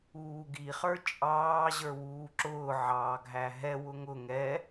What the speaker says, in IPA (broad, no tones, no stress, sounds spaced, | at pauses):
uː ɡ i χ ə˞ t͡ʃʼ ɑː ʑ ə˞ w uː ǁ ʊː ʕ ɑː ɡʱ æ ɦ ɛ w ʊ ŋ ʊ ŋ ɛ